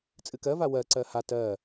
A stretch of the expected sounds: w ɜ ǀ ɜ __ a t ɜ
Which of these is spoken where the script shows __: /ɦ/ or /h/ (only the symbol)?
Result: h